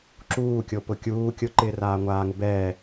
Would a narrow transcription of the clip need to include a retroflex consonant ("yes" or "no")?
no